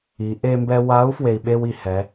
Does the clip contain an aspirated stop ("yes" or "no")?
no